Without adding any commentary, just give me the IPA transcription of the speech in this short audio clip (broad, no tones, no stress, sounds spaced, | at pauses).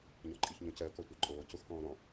ɲ ɔ ǃʼ i ç ɲ õ c ɜ k ɔ tʷ ɜ ǃʼ oː c o x k ɔ̃ː ɾ ɔ̃